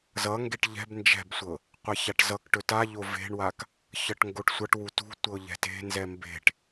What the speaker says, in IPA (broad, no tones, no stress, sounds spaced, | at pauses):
z ʌ ŋ ɡ e ʈ ʎ ɛ̤ b n d͡ʒ ɛ̤ b sʷ ɤ | qʷ ɛ ç a ʈ z ʌ k ʈ ɵ t a ʎ o v e̤ ɳ w a k | ç ʌ ʈ ŋ ɡ o ʈ sʷ ʌ ʈ w u t ṳ tʷ ɤ ʎ ɛ̤ t e̤ n z ɛ m b e̤ ʈ